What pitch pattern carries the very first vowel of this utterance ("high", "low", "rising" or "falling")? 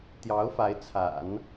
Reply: rising